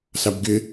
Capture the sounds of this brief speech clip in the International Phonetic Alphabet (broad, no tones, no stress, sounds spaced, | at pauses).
s a b ɡ ɪ